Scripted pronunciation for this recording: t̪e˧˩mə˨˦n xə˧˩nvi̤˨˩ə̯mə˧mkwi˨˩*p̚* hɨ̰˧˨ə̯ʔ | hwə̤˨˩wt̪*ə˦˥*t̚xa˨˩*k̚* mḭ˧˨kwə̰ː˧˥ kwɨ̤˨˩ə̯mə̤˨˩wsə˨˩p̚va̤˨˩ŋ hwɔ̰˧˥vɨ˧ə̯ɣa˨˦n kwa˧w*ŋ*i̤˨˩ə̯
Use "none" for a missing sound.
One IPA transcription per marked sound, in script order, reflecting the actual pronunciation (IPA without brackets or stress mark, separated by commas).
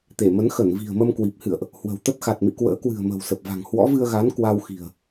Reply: p̚, ə˦˥, t̚, x